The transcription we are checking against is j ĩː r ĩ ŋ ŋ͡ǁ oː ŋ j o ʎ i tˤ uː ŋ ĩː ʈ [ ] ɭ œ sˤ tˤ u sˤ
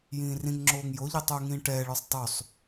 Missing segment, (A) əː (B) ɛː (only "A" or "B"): B